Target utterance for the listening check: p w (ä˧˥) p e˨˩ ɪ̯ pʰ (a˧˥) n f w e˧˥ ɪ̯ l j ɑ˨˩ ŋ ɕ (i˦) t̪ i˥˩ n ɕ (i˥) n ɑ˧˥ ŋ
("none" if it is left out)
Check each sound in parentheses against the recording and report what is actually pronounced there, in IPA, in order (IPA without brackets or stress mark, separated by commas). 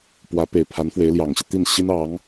ä˧˥, a˧˥, i˦, i˥